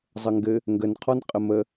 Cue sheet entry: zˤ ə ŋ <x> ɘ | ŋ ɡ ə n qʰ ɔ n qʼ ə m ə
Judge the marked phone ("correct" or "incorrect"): incorrect